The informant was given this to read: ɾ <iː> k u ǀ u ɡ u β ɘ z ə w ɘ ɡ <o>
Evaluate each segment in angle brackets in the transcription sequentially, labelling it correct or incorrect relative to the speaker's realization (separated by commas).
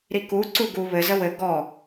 incorrect, incorrect